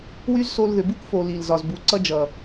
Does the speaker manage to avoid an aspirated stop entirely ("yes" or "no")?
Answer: yes